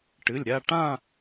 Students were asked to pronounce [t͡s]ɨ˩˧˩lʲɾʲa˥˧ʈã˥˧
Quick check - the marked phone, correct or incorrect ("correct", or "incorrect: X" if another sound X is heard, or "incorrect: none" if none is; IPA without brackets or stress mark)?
incorrect: ʈ